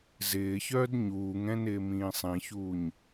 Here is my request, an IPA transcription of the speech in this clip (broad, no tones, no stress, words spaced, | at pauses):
zɪːçœːd ɲuːŋɛ̃nɪːmĩː sˤĩçuːɲ